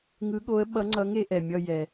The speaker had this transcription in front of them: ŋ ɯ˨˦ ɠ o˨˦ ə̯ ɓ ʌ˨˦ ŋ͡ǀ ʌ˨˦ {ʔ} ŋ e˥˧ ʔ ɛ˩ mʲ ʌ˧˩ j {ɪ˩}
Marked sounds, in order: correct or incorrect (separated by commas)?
incorrect, incorrect